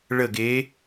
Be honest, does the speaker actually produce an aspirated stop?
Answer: no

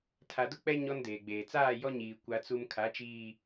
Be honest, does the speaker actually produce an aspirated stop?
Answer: yes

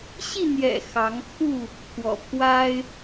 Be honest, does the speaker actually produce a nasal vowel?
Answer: no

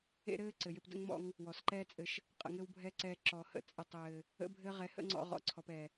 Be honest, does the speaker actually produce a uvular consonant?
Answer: yes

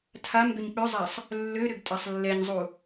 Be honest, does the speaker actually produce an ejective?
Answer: yes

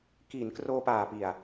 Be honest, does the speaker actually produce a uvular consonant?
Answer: no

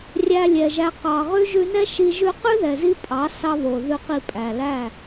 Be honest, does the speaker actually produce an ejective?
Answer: yes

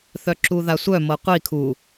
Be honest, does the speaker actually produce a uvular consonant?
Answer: yes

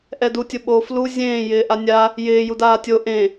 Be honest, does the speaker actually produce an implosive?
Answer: yes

